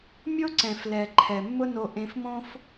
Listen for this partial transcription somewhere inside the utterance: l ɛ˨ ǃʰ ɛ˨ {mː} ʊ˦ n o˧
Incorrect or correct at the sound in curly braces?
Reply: correct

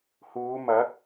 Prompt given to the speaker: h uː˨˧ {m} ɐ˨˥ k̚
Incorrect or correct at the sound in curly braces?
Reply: correct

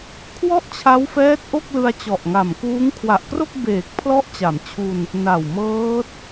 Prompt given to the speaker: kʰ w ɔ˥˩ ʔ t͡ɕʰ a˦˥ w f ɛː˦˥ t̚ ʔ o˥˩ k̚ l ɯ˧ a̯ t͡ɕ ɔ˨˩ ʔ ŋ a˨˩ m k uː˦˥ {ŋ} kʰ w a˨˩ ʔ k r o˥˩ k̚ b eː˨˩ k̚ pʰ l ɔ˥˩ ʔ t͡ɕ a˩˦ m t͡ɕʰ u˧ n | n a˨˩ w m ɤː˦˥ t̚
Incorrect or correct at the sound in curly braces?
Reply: correct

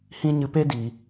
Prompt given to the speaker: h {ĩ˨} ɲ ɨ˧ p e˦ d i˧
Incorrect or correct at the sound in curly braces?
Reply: incorrect: ĩ˦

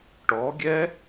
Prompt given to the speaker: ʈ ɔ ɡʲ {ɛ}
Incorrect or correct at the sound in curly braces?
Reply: correct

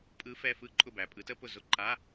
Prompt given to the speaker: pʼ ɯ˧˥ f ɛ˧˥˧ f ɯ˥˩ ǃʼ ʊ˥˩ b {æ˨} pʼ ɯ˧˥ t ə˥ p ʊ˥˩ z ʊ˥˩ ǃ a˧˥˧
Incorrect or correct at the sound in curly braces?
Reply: correct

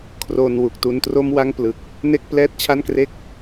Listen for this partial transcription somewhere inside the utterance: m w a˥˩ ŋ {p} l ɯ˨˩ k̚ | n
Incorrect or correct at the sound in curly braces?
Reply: correct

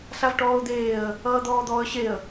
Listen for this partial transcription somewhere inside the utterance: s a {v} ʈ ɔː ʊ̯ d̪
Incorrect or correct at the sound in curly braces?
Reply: correct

